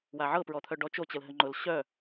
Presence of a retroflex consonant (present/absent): present